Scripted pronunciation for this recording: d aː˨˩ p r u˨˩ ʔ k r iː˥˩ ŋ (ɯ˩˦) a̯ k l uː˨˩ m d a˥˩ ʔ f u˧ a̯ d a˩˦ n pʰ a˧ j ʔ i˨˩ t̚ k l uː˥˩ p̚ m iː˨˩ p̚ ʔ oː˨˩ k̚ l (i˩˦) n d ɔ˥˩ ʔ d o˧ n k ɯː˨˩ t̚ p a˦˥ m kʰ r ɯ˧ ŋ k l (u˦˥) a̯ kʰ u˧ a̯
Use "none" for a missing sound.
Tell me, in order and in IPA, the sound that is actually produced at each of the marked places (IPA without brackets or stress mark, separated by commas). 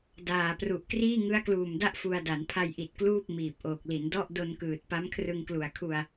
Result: ɯ˦˥, i˩˦, u˨˩